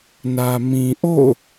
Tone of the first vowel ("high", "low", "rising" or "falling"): low